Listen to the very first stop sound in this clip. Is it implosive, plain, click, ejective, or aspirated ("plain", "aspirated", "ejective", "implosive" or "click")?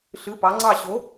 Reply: plain